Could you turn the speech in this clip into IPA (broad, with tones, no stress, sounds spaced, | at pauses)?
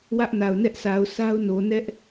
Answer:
w ä˦ ʔ n a˨ ʊ̯ n ɛ˦ ʔ s a˨ ʊ̯ s a˦ ʊ̯ n o˨ n ɛ˦ ʔ